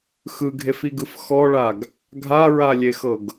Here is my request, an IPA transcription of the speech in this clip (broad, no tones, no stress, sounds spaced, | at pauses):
x ɯ ɡʱ e f i ɡ ɯ f x ɔ ɭ a ɡ | ɡʱ a ɹ a lʲ e x ɤ ɡ